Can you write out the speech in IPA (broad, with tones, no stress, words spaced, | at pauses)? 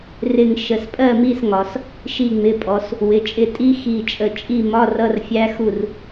rɪ˧˩ŋ ʃə˩˧spʼɜ˥˨mi˥˨sŋɒ˩˧s | ʃi˧˩ŋ͡mɪ˩˧˩pʼɔ˩˧s | wɪ˩˧˩t͡ʃʼɪ˧˩ tʼi˦˥xi˧˩t͡ʃʼə˧˩t͡ʃʼi˥˨ mɒ˧˥˧rʌ˧˥˧rfʲæ˦˥ xu˥˨r